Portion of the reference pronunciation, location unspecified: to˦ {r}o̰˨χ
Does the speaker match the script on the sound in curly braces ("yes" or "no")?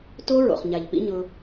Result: no